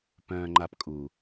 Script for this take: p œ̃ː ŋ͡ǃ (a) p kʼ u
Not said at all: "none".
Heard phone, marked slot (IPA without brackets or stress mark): a